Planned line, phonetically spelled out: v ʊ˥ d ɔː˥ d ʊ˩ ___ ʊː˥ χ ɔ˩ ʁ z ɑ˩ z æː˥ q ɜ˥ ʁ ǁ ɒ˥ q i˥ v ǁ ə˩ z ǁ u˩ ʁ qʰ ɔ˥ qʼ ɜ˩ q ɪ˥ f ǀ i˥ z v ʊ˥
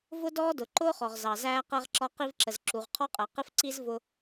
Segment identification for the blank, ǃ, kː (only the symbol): ǃ